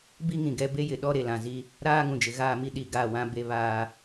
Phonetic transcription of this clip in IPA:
b i˦ ŋ ĩ˨ ɡ ɛ˦ b e˦ j ɪ˨ ɗ ɔ˦ ɾ e˨ l ã˨ z i˦ | ɾ aː˦ ŋ ũ˨ d͡ʒ ɪ˨ ɣ aː˦˨ m i˦ ɗ i˨ ɡ a˦˨ w ã˦ b e˦ β aː˦

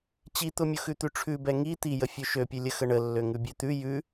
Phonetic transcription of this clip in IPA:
t͡ɕ i t̪ ʊ mʲ ʊ x ʉ t̪ ʉ ʈ͡ʂʰ ʉ b ɛ ŋ i t̪ i j ə fʲ ø ʃ ø pʲ ʉ lʲ ə x ə ɳ ə lː ø ŋ ʉ bʲ ø t̪ ʉ j ʉ

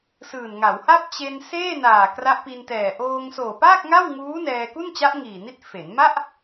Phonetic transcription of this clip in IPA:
s ɯː˨˩ n ŋ a˩˦ w h a˥˩ p̚ t͡ɕ e˧ n s eː˥˩ n aː˨˩ k r a˦˥ ʔ p i˧ n t ɛː˨˩ ʔ oː˧ ŋ s oː˨˩ p aː˥˩ k̚ ŋ a˥˩ w ŋ uː˦˥ n ɛː˧ k u˥˩ n t͡ɕ a˦˥ ʔ ŋ iː˨˩ n i˦˥ t̚ f e˩˦ n m a˥˩ ʔ

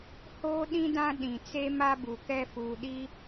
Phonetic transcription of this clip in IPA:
h oː˦ ɗ ĩ˦ d ã˦ ɗ ĩ˨ t͡s e˦ m a˦ b u˨ k ɛ˦ f uː˨ ɗ i˦

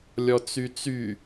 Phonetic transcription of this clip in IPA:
lʲ ɔ t͡s y t͡s y

